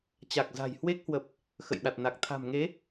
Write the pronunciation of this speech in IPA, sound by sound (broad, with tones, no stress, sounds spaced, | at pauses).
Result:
t͡ɕ a˨˩ k̚ z a̤˨˩ j h w e˦˥ k̚ h w ə˨˩ p̚ | x ə̰˧˨ j ɗ a˨˩ t̚ n a˨˩ k̚ t̪ʰ a̤˨˩ m ŋ e˨˦